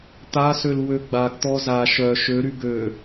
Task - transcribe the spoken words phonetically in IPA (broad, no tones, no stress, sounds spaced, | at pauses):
t̪ a s ø l w ø ɡ͡b a ɡ t̪ ɔ z a ʃ œ ʃ ø ɾ y ɡ ø